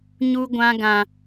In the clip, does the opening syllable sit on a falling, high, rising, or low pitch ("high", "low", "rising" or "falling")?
high